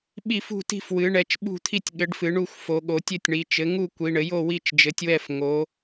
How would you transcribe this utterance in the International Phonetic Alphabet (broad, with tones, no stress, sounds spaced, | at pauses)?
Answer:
ɓ i˦˨ f ṳ˦˨ t i̤˦˨ f w ɨ˩˧ ɳ ɛ˩˧ t͡ʃ ɓ ṳ˦˨ t̪ʰ i˦˨ tʲ ɠ ɘ˩˧ ɖ f ɨ˩˧ ɳ u˦˨ xʷ f o˩˧ ɠ o˩˧ tʲ ɘ˦˨ tʲ ɳ i˩˧ t͡ʃ ɘ˩˧ ŋ u˦˨ kʷ i˩˧ ɳ ɘ˩˧ j o˦˨ w i˦˨ t͡ʃ d͡ʒ ɘ˩˧ tʲ w ɛ˦˨ f ŋ o˩˧